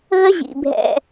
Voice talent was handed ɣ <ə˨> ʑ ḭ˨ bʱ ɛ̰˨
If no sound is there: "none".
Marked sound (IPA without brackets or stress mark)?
ə˦